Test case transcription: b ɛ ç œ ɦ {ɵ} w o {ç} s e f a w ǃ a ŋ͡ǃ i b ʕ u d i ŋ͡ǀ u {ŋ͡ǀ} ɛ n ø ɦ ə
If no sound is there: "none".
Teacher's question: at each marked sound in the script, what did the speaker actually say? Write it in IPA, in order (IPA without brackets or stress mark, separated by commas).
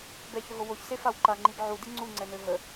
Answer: o, ç, ŋ͡ǀ